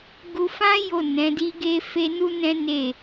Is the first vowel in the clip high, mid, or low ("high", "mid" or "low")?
high